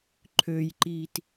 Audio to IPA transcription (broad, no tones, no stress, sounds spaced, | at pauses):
ǃʰ ø j ǃ iː t